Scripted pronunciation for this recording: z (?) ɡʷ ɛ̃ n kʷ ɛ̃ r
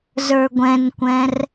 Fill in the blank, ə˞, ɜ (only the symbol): ə˞